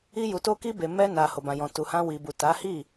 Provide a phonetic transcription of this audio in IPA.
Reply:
i˧ ju˨to˧ki˧be˨ mɛ˧na˨ ho˨bã˨jɔ̃˨ tu˨hã˧ wi˨bu˨ ta˨˦ hi˦˨

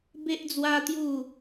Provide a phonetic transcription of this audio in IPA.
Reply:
be˦ʔd͡zwa˦t̪ju˥˧

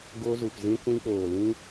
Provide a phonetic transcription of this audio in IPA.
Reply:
ɡo˧zu˨pzĩ˧ kʷĩ˧k͡poː˨ lĩ˦

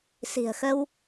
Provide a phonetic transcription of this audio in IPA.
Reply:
si̤˨˩ə̯xə˧w

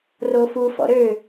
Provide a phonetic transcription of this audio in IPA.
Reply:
rofu fɔ̰ɾø

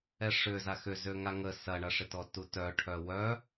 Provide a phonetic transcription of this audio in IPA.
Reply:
ɛʂʏ zaxʏ zøŋaŋə sɐɳɐʂɪtɔ tutœʈʰœ wœ

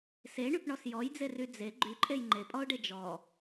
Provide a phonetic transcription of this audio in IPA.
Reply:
seɳypɳɔs jɔjd͡zery d͡ze ɡ͡ǃyǃʼej ŋ͡ǃepʼɔʊ̯ɖe d͡ʒɔ

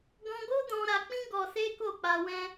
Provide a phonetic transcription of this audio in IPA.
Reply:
ɡɔ̃˦ ɡo˦dɔ̃˧ ɾa˧k͡pĩ˦ ɡɔ˧se˦ko˦˨ k͡pa˧wɛ̃˦

